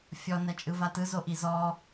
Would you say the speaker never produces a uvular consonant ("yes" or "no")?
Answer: yes